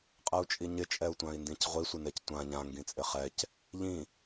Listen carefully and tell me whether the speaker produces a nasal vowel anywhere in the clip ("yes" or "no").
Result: yes